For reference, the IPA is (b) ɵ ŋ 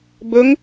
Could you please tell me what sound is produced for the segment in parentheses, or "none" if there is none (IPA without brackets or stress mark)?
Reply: b